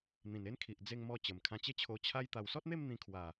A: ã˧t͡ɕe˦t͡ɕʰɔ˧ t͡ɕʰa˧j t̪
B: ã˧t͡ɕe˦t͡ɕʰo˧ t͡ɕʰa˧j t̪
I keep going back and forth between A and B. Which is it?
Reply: B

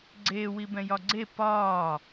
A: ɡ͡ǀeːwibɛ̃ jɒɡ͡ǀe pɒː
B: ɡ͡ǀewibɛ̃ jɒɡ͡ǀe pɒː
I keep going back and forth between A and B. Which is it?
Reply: A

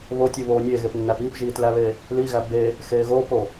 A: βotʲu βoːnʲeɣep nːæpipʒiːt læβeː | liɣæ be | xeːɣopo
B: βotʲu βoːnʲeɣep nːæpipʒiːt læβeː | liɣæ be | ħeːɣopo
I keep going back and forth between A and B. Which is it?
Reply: A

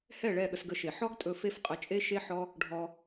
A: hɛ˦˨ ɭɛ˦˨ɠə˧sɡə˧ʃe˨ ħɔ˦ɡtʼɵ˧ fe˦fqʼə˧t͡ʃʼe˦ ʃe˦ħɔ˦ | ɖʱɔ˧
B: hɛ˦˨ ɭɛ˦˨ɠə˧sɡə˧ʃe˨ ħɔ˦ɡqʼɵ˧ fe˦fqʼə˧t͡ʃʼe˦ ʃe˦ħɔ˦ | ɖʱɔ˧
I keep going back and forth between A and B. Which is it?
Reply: A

